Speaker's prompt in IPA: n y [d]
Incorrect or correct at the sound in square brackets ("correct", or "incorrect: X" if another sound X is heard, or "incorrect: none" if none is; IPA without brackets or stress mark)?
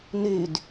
correct